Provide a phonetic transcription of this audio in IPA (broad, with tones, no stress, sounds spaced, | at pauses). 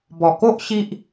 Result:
b ɔ˨˩ k o˦ ʔ ɕ i˦ ʔ